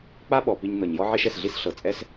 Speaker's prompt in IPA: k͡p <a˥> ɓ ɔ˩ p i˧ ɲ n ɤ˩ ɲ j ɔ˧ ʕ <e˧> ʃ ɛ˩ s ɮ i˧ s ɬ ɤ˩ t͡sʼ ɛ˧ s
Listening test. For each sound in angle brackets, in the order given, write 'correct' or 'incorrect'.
correct, correct

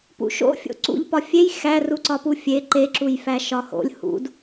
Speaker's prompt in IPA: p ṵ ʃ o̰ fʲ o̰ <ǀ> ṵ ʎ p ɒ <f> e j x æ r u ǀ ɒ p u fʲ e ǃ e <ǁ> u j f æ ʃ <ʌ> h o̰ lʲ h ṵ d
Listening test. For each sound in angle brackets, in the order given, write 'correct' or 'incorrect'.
correct, incorrect: fʲ, correct, incorrect: ɒ

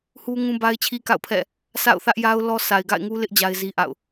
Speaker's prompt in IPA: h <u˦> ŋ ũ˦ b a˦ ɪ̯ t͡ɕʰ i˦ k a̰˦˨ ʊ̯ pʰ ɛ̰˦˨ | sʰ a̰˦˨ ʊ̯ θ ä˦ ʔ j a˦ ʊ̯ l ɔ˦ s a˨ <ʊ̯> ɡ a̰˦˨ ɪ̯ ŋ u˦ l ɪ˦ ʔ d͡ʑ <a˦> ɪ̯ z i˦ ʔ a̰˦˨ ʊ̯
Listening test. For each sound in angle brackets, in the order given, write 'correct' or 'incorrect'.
correct, incorrect: ɪ̯, correct

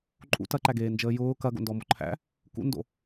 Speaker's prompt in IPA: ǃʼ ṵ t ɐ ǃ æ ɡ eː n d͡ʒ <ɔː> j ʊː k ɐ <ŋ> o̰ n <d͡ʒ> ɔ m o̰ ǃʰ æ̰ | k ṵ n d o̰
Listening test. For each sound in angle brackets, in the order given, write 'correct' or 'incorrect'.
incorrect: əː, incorrect: ɡ, incorrect: d

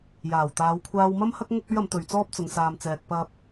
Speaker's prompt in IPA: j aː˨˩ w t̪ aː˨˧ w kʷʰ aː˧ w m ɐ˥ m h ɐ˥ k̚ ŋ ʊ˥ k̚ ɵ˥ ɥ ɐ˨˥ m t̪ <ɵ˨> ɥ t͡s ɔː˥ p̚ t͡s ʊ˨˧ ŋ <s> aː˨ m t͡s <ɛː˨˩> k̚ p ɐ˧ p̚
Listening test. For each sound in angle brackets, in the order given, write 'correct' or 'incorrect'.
correct, correct, incorrect: ɛː˨

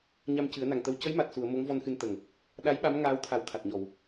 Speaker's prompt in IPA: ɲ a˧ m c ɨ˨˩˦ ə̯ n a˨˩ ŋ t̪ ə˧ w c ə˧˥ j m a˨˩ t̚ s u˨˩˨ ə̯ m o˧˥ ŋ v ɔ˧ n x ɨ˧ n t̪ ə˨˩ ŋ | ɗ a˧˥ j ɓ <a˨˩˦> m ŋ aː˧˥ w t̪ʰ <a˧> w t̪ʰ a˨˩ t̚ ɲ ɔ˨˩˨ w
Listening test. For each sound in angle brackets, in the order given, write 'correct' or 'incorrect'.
incorrect: a˧˥, incorrect: a˨˩˦

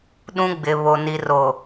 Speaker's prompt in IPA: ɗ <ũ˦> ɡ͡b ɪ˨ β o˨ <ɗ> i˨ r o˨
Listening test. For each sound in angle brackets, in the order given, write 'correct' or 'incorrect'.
correct, incorrect: n

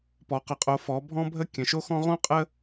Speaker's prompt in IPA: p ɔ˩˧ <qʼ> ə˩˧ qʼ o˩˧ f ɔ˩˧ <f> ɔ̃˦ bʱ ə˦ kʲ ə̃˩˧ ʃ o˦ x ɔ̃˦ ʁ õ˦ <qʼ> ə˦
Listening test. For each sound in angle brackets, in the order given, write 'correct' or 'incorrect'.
incorrect: q, incorrect: bʱ, correct

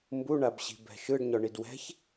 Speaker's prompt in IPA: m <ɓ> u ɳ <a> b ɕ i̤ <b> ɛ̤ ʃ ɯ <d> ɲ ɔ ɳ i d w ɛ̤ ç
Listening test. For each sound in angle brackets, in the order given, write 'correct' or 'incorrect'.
incorrect: b, correct, correct, incorrect: ɖ

